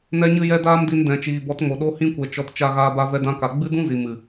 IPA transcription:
nɛ˦ɲɨ˦jɛ˦ daː˦mdi˧n dɛ̃˨t͡ʃiː˨bɔ˨˦tŋo˨ ɗo˧hĩ˧kʷɛ˨ t͡ʃɔ˧t t͡ʃa˧ɣaː˧ba˧ vɛ˧dã˧ka˨ ɡ͡bɨ˦dũ˦zi˨ mɨ˨

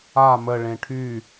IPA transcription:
a mə ɭẽʈʰy

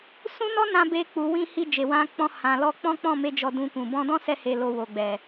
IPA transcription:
sũ˦nɔ˦nã˧ be˧k͡pu˨ wĩ˧ hi˧d͡ʒe˨wã˧k͡pɔ̃˧ hã˨lɔ˧ k͡pɔ̃˦k͡pɔ̃˦˨me˧ d͡ʒɔ˧dũ˧kũ˨ bɔ̃˧dɔ̃˦sɛ˧he˨ lo˧wo˨ɡ͡bɛ˨

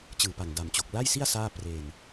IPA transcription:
t͡ɕɯː˨˩pa˨˩ŋda˨˩mt͡ɕo˨˩k̚ la˥˩jsi˥˩a̯ saː˥˩ preː˧n

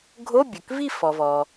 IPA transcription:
ɡʱo˧˥˧bʲɵ˩kvi˥˨ fɔ˩vɔ˩

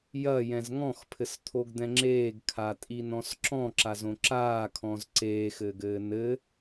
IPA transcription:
jɐjɛ̃z ŋɔ̃xpʰɘst̪ʰoɡd̪ɛ̃ ŋ͡ǁeːɡkʰatʼinɔ̃s ǁɔ̃ǁazõ ǁaːkʰɔ̃z ǀeːxɘːɡɘː nɘ

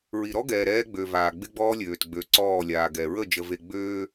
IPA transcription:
ɹi˨ɾɔ˦ɡɛː˨ ɾɛː˦ɡ͡bø˨ vaː˨ɡ͡bɪ˦ɡ͡bɔː˦lʲøː˨t ɡ͡bø˨ǀɔː˦˨lʲaː˨ ɡɛ˨ɹə˦˨ d͡ʒə˨ve˨ɡ͡bøː˦

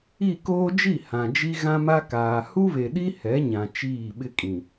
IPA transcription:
i˦˨ koː˦d͡ʒi˦˨ hã˨d͡ʒi˦ ɣã˦ma˦kaː˨ hu˦βe˨ɗi˦ hɛ˨˦ɲã˨ t͡ʃiː˦˨ɓɪ˦kʼĩ˨

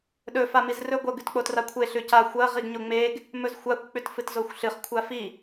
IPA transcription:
ɗɵ famizrɵ ɡʷɐ ɡʉtk͡potrakʷʰe ɬʉca xʷɐ ʁiɡɲoŋ͡meɡ | mɵzxʷakʷ k͡pʉtfɨtzoxʷɬɨχ kʷʰafi

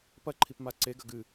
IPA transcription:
pɐ ǃʰipmaǀe ɡɐɡɨ

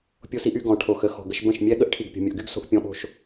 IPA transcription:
pʲo˦si˦ʔy˦ ɡɔ̃˧ ʈʰo˧xə˨˦ xɔ̤˨ɡə˧ʃbə̃˦˨ʃmʲɛ˦ ɠə˦ʔʈʰi˨ɡ pʲo̤˨mʲə˨ʔɡy˦ɡso̤˧ʔ pʲɔ̃˧ɓo̤˧ʃ

